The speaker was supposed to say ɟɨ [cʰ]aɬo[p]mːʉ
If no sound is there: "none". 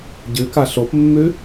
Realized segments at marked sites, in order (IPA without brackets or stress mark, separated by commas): k, p